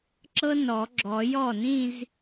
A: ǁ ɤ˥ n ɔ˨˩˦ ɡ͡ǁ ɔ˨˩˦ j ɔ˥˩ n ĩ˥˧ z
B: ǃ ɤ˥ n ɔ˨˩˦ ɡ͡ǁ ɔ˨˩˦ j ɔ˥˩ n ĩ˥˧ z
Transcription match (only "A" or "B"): A